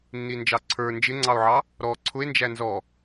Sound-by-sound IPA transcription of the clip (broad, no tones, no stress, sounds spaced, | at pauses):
nː i n d͡ʒ ɑ ǀʰ ə˞ n d͡ʒ ɪ ŋ͡ǀ ɑ o̯ ʕ ɑ | ɾ ɔ ǀʰ ʊ e̯ n d͡ʒ æ n z ɔ